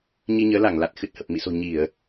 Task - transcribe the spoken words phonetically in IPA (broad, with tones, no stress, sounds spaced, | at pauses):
ɲ i˧ ɲ əː˨˦ l a˧˩ ŋ l a˨˩ t̚ x ɨ˨˩ t̚ h ə˨˩ p̚ m ḭ˧˨ s o̤˨˩ ɲ i˧˩˨ ə̯